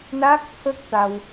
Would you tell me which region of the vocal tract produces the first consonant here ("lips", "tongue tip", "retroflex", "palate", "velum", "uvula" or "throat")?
tongue tip